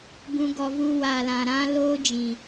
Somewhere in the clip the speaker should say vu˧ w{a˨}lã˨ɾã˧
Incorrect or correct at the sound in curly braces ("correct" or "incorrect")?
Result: correct